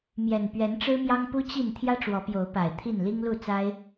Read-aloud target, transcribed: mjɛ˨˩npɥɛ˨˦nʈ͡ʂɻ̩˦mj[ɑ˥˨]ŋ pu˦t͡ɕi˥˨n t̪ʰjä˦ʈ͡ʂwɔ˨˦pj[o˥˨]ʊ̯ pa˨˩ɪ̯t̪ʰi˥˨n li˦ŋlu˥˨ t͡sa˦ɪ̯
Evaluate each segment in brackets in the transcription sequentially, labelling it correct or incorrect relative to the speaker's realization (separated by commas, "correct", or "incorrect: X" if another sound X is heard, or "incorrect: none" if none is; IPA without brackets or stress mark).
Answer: incorrect: ɑ˦, incorrect: o˨˦